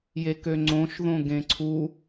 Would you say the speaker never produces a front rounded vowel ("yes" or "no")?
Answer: no